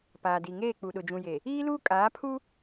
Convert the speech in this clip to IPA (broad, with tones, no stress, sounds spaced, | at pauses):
p aː˨ d i˨ ŋ eː˦˨ k͡p u˨ ɗ ʊ˨ d͡ʒ ũ˨ j e˨ | iː˦ l uː˦ kʼ aː˨˦ pʰ u˦